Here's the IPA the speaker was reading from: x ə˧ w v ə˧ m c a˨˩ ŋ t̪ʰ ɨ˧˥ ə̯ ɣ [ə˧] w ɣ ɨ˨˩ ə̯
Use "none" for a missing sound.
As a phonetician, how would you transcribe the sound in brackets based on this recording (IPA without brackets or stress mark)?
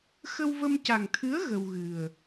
ə˧